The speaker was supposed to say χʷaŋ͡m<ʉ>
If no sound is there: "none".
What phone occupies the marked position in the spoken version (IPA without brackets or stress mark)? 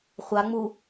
u